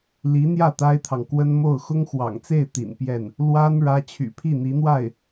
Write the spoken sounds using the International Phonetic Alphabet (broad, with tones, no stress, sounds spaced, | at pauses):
l i˧˥ n̪ j ä˥˩ t̪ a˥ ɪ̯ t̪ʰ ɑ˨ ŋ k w ə˥ n m o˥˩ ʊ̯ x ʊ˥ ŋ x w ɑ̰˨˩ ŋ t͡s e˥˩ ɪ̯ t̪ ḭ˨˩ n p j ɛ˥˩ n | l w a˥ n ɻ ä˥ t͡ɕʰ y̰˨˩ pʰ i˥˩ n̪ i˧˥ n̪ w a˥˩ ɪ̯